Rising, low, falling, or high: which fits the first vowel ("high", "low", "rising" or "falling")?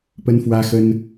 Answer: high